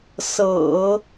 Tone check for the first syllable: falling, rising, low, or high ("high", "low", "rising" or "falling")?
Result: low